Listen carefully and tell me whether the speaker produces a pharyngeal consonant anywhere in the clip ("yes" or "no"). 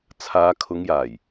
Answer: no